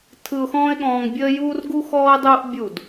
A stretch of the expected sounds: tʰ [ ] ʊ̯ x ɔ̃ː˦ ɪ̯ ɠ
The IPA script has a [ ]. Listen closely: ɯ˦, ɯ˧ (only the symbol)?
ɯ˧